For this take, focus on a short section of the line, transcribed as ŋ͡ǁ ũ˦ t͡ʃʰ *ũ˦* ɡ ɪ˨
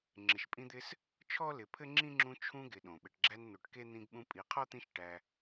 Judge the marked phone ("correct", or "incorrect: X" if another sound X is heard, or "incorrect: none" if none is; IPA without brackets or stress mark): correct